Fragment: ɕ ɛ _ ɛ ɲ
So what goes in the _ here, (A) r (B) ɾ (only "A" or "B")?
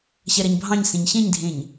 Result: B